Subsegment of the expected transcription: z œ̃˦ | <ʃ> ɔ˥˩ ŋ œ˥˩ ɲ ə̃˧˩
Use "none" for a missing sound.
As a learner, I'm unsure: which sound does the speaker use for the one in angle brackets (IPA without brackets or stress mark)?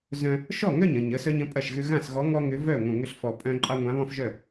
ʃ